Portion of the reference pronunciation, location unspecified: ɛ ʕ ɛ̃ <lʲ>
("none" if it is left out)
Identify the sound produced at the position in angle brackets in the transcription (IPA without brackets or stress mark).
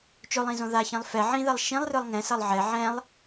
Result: lˠ